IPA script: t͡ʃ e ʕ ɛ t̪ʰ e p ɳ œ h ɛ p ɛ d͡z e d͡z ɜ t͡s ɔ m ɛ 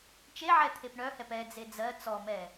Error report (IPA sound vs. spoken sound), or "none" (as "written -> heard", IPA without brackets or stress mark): none